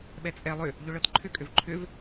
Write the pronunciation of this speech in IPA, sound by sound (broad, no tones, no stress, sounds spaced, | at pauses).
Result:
ɓ ɛ t͡sʼ ɛ lˠ ʏ | ʎ ʏ ɭ ɤ t ǃʰ ʏ kʼ ʏ v ǃʰ ʏ v